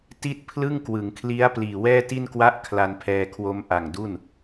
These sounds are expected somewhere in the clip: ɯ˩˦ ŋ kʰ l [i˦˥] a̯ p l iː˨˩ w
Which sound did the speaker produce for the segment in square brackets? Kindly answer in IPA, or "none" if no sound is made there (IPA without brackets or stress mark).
i˦˥